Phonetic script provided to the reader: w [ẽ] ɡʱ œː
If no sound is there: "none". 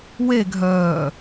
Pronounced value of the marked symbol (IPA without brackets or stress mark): e